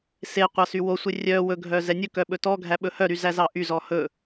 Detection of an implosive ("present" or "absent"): present